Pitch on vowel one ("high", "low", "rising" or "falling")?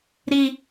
low